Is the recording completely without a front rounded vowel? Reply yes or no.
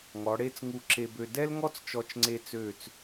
no